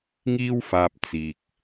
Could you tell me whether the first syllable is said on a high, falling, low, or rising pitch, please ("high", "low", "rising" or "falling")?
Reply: high